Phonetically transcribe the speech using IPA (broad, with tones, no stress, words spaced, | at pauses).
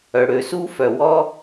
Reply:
œ˩ɽø˩su˥ fœ˩wɔ˥